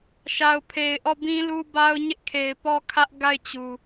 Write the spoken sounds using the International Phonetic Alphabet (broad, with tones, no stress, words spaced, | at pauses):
ʃa˨ʊ̯pʰe˨ɪ̯ʔɔ˦˨ bĩ˦lu˦ba˦ʊ̯ ɲɪ˦ʔkʰe˨ɪ̯pɔ˦kʰä˦ʔ ɡa˦˨ɪ̯t͡ɕu˨